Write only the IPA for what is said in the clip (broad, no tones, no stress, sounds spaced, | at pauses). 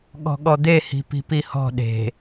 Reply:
ɠ ɔ̤ ɠ ɔ d̪ e h i̤ p i̤ p i h ɔ̤ ɗ e̤